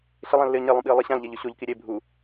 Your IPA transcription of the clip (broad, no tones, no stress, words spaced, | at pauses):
ɬɪlˠãlːɪə̯ ɲelˠũɓiə̯ lˠiɕãlʎɛʎ ʊɕoʎki ɾʲe bʱu